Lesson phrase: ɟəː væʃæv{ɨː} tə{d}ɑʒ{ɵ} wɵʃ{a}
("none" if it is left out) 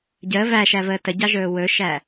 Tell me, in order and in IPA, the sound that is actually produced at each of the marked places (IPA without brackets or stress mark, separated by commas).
əː, ɟ, ɵː, æ